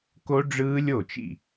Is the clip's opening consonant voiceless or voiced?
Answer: voiceless